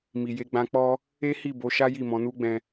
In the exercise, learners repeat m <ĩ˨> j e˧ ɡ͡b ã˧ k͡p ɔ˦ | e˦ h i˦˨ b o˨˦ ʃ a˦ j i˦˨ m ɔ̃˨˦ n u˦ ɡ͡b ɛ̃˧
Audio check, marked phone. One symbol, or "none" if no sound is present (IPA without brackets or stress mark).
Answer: i˨